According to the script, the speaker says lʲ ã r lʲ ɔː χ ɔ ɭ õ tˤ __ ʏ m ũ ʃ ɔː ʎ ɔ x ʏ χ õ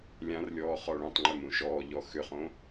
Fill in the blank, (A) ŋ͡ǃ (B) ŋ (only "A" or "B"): A